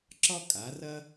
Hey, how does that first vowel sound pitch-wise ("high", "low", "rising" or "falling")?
high